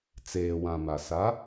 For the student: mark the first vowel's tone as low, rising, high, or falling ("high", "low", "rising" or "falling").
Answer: low